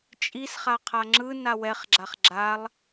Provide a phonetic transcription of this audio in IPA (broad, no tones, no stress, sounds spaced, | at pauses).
t͡ʃʼ i s χ a qʰ a ŋ͡ǁ ɯ n a w ɛ χ ɡ͡ǁ a χ ɡ͡ǁ a lˠ